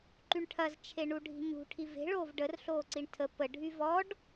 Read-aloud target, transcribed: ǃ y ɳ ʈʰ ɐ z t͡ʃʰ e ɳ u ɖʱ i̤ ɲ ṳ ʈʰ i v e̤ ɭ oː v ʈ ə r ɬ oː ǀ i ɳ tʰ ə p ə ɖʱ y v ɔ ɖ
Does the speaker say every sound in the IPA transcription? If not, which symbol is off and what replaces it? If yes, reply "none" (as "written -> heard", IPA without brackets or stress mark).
ʈ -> ɖ